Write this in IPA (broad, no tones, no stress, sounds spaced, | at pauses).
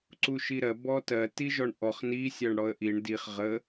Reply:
ǀ u ʃ i ɾ ɜ b ɔ t ɜ t i ʒ ɔ ɳ ʔ ɔ χ n i sʲ ɜ ɳ ɽ ɔ ə̯ ʔ i ɳ d i χ ʁ ə